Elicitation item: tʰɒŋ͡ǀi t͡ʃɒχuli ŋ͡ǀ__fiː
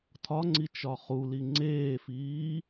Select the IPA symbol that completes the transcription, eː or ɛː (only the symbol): eː